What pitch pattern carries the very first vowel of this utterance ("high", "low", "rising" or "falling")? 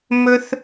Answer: high